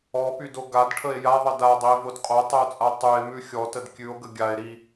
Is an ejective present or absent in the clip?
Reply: present